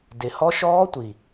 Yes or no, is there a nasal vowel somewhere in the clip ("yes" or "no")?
no